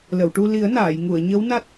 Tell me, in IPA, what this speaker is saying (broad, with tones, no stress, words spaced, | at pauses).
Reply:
lə˨˩˨wʈu˧ li˨˩˦ə̯naː˨˩˨jŋu˨˩˨ə̯ ɲə˧˥wna˦˥t̚